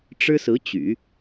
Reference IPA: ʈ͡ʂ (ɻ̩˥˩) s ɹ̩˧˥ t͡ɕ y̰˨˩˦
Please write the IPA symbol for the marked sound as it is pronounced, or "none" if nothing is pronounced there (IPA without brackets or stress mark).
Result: ɻ̩˥